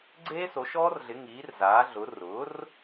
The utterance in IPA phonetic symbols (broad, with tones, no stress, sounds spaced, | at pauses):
ɡ͡ǀ eː˦˥ s o˩˥ ʃ ɔː˦˥ r ɮ ɪ˩˥ ŋ iː˩˥ r z aː˩˥ ɮ ʊ˩˥ r ʊ˩˥ r